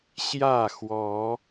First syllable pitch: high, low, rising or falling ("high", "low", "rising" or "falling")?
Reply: falling